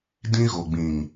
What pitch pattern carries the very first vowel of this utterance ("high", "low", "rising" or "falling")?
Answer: high